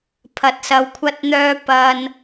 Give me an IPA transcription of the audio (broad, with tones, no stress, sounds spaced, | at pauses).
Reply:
pʰ ɐ˧ t̚ s ɐ˧ w kʷʰ ɐ˥ t̚ n̪ œː˥ p ɐ˧ n